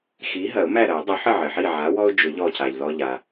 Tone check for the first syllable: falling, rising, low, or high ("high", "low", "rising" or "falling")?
rising